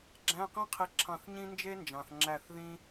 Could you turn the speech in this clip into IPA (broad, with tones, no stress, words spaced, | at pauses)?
ɡ͡ǁæ̃˧˥˧qĩ˥ qʰi˧˥ǁʰɑ̃˦˨θɲĩ˥ nd͡ʒe˥nd͡ʒɑ̃˨θ ŋ͡ǁæ˦˨θðĩ˥